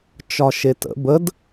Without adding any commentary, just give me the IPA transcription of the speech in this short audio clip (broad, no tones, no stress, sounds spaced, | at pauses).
t͡ʃ ɒ ʃ e t ə̰ b ə d